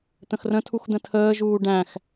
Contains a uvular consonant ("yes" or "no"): no